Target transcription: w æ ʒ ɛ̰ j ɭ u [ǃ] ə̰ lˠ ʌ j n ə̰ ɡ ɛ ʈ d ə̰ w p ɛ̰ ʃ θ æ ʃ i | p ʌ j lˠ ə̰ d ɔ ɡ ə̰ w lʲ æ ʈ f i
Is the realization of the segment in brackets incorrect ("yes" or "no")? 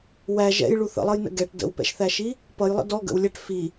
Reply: yes